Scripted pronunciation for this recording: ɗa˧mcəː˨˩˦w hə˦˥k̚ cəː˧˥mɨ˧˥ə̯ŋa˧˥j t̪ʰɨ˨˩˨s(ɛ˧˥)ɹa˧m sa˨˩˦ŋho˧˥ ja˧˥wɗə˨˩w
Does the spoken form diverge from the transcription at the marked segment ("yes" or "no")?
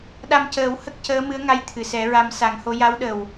yes